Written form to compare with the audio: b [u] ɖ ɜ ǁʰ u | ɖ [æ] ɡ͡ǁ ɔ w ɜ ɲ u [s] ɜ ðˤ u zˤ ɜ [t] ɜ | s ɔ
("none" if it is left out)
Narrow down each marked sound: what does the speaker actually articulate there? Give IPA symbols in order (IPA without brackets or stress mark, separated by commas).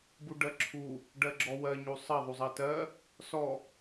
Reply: u, ɜ, sˤ, t